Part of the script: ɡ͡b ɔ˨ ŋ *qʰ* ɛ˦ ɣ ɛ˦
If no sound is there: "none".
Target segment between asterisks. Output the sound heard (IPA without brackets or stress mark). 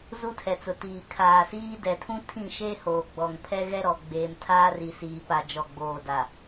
pʰ